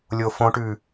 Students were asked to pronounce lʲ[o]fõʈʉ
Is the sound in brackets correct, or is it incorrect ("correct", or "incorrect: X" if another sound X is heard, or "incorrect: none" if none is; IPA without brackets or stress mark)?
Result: correct